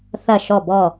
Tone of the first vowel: falling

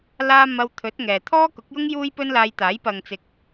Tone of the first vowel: high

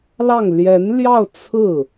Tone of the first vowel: falling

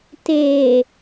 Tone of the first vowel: low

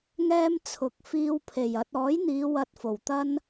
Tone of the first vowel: high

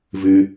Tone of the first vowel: high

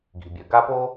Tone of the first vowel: low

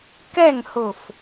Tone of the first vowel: falling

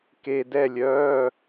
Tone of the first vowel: low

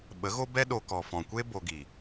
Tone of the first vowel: rising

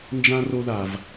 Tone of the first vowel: high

